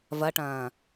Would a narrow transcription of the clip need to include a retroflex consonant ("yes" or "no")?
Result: yes